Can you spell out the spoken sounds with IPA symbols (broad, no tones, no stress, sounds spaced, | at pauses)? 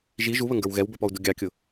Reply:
ʒ i ʒ u β ə ŋ ɡ ə˞ w ɣ ɛ w b ə˞ p ɔ u̯ d u ɡʲ ɑ kʲ ʊ